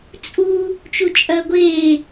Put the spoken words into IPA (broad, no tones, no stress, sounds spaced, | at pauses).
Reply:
t͡sʼ u | t͡ʃ u t͡ʃʼ ɐː ɡʷ eː